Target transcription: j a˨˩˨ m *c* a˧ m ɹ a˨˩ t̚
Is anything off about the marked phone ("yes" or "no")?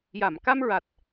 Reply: yes